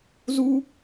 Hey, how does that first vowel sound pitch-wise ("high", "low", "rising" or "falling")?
high